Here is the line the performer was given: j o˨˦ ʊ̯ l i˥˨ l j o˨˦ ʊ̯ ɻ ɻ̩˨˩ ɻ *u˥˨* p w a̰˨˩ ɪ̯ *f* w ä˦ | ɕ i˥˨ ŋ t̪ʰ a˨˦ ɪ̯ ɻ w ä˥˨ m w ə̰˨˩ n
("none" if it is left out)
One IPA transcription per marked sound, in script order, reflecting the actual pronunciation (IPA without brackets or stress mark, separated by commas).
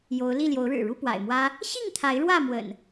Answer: u˥˨, m